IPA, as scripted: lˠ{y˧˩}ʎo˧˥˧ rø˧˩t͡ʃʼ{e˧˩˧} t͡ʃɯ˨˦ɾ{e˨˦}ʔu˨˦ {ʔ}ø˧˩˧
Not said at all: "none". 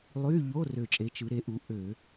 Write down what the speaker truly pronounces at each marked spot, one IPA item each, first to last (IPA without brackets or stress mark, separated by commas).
y˧˥˧, e˨˦, e˨˦, ʔ